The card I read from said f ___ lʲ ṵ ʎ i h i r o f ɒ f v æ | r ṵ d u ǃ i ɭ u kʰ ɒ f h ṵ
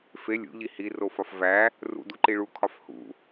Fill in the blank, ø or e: e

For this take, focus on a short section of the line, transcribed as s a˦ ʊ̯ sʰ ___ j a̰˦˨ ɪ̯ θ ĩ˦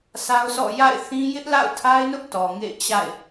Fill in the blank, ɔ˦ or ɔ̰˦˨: ɔ̰˦˨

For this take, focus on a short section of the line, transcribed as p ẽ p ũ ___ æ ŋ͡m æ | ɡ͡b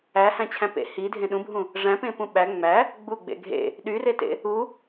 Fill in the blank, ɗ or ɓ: ɓ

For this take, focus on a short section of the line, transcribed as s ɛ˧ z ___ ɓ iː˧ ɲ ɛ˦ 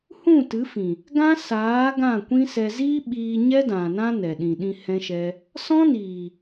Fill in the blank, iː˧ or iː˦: iː˦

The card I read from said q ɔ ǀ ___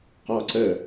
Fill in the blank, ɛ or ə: ə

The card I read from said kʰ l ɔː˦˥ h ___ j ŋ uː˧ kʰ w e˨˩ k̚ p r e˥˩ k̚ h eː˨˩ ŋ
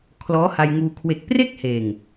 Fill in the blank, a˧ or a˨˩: a˧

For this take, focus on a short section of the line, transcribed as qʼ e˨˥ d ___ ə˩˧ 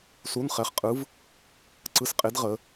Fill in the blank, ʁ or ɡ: ʁ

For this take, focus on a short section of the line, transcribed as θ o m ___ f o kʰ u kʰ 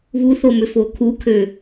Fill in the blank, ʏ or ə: ʏ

